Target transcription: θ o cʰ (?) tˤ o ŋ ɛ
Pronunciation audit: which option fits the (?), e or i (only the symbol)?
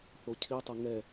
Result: i